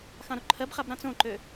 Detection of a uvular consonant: present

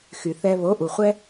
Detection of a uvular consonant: present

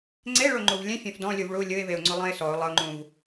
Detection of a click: present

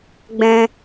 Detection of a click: absent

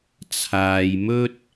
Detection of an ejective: absent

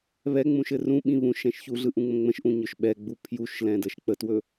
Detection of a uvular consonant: absent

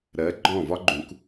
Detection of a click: present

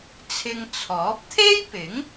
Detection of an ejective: absent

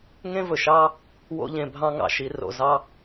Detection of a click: absent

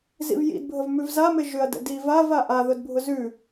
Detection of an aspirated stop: absent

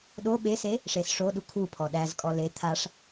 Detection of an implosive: present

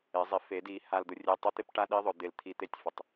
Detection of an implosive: present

